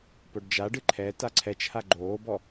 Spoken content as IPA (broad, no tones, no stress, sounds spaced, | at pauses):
p o ɖ d͡ʒ a ɖ ɨ ǃʰ ɛ t a ǀʰ ɛ t͡ʃ h a ɡ͡ǃ oː b ɔ